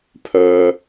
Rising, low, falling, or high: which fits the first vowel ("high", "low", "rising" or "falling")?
low